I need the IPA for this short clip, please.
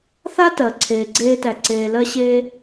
θ a˥ t ɜ˩ ǀʰ eː˩ ɡ͡ǀ eː˥ t æ˩ ǀ eː˩ l ɜ˥ ɕ eː˥

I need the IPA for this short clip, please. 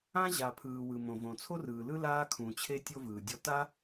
ã˥ ʑ a˩ pʰ ɯː˩ w ɯ˩ m õ˩ v õ˩ t͡sʰ o˥ r ɯː˩ l ɯ˥ l aː˥ kʰ ũ˩ t͡ɕʰ e˥ tʲ o˥ v ɯː˩ dʲ ɔ˥ t a˥

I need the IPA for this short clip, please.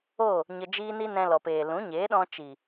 o˦˨ | ɲ ə˧ d͡ʒ iː˦ n i˦ n ɛ̃˧ l ɔ˨ p eː˨ l ũ˨˦ ɲ eː˨˦ ɗ ɔ̃˧ t͡ʃ i˨

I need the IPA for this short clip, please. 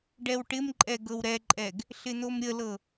ɖ ɛ w ʈ ɪ m ǃʼ ɛ ɡ ɤ w ɾ ɛ ǃʼ ɛ ɡ | ɬ ɪ n̪ o m ɾʲ ə l ɤ

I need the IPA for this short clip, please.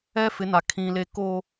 ɛ˦ f ɪ˨˦ n a˨ kʰ ĩ˨ l e˨ k o˨

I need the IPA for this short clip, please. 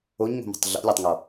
o ɲ ŋ o̤ m e̤ tˤ ɮ ɔ̰ lʲ o tˤ ŋ ɔ

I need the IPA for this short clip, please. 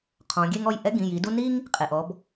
qʰ ɔ̃˩˧ ɡʲ e˦ ŋ ɔ˩˧˩ j ʔ ɛ˦ ɡ ĩ˩˧˩ j i˩˧ d u˦ n i˦ ŋ | qʼ e˩ ʔ ɔ˩˧ b

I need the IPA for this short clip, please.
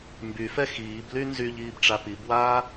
m b y f ɛ x iː b l y n z y ʎ iː b ʈ͡ʂ a p i b w aː

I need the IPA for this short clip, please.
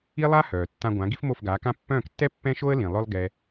i˥ lˠ a˥ h œː˩ tː ã˧ ɡʷ ã˩˥ ɡ i˥ f m o˥˩ f ɡ aː˩˥ k ã˥ pː œ̃ː˥˩ k tː ɛ˥ pː ɛ̃˥ ʃ o˥ ə̯ l ĩ˩ lˠ œ˥ lˠ ɡ ɛ˧

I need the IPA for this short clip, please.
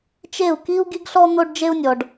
t͡ʃ e˦˨ u̯ k i˦ u̯ ɡ i˦ ɡ ɬ ɔ˦ n̪ o˦ ɖ d͡ʒ e˦ u̯ nʲ ɔ˨ ɖ

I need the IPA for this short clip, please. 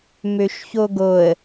m ø ʃ ç o ɡ o ə̯

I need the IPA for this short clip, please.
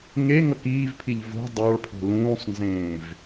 ŋ e ŋ ʌ k iː v pʰ i ʎ v o̤ dˤ ɑ ɭ pʰ o̤ l ũː sˤ n z ẽː v

